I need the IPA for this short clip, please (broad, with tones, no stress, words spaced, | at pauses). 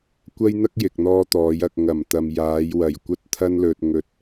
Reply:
kʷɐ˥jn̪ɐ˥k̚jɪ˨k̚n̪ɔː˧ t̪ɔː˨˧j ɐ˨k̚ŋɐ˨˩m t̪ɐ˨mjaː˨˧jwɐ˨˩j kʷɐ˥t̚t̪ʰɐ˥nlɵ˧t̚ ŋɵ˧t̚